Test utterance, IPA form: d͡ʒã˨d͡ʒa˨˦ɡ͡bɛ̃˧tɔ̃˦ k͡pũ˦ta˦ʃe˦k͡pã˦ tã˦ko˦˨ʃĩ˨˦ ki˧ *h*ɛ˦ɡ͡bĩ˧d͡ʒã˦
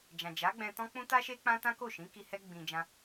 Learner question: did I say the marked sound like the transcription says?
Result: yes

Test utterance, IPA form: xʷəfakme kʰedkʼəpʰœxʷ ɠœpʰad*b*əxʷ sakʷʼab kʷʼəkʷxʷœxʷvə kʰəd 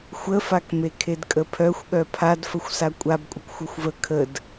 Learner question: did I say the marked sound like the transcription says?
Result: no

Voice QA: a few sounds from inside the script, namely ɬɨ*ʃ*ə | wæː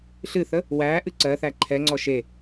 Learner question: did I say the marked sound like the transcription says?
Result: no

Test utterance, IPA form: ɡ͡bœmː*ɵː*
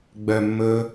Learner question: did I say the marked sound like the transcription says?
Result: yes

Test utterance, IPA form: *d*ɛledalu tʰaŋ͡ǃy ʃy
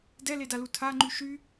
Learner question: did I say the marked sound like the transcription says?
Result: yes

